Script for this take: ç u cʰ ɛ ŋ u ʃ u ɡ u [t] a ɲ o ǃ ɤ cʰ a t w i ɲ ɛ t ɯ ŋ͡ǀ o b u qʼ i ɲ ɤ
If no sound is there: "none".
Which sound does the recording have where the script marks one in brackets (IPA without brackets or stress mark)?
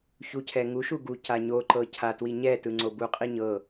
c